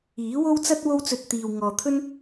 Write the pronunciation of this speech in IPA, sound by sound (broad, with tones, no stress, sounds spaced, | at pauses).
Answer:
iː˨˥ w o˥ w t͡s ɐ˥ t̚ w o˥ w t͡s ɵ˧ t̚ t̪ iː˨ w ŋ ɔː˨ t̪ʰ ɵ˥ n